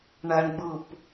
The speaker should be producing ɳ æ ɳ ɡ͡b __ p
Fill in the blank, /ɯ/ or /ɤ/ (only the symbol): ɯ